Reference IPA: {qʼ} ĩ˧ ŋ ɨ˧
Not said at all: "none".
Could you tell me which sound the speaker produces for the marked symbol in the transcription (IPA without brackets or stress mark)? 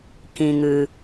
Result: k